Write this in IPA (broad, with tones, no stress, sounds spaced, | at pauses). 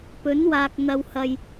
p ɵ˨˥ n w aː˨ k̚ n̪ ɐ˨ w h ɐ˨ j